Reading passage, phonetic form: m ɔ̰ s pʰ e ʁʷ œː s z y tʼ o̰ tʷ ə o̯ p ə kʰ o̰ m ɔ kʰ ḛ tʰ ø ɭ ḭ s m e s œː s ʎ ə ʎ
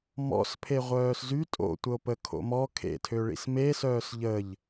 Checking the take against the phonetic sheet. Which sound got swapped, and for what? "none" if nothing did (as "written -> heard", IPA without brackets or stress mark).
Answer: none